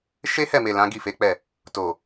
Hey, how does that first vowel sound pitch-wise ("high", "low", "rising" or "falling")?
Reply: high